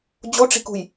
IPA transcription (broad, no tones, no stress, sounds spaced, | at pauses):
d͡ʑ o ʈ͡ʂ i̤ k ṳ j